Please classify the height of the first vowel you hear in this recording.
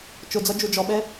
high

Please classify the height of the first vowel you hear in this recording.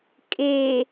mid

